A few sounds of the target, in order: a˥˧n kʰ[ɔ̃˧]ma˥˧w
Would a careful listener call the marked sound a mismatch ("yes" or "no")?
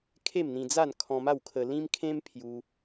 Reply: no